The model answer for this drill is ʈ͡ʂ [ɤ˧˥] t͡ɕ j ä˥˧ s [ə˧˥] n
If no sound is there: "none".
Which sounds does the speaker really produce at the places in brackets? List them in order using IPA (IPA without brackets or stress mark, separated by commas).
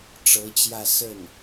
ɤ˧˥, ə˥˩